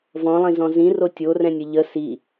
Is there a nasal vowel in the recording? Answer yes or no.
yes